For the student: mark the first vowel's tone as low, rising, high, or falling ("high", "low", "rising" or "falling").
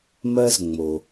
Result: high